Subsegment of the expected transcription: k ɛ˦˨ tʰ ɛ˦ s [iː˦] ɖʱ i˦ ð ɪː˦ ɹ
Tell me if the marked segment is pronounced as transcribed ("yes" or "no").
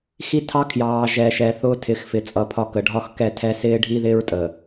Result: no